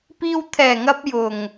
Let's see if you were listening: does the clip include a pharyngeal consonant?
no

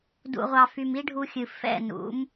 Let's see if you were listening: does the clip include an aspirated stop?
no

